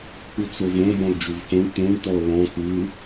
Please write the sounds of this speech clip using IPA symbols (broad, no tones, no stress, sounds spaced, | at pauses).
k u t͡s o v õ b ɔ̃ l d͡ʒ u v x õ ɳ t̪ õ ɳ t̪ ɔ l ɔ̃ k ɯ